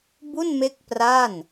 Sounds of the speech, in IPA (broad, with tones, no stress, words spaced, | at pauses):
bu˥˩nme˦˥k̚ pra˥˩n